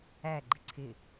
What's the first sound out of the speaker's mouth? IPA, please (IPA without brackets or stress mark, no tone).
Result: æ